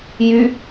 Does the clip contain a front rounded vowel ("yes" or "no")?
yes